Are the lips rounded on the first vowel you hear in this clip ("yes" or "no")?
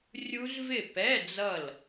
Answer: yes